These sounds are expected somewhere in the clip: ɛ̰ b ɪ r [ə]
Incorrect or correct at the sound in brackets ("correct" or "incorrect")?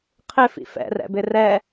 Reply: incorrect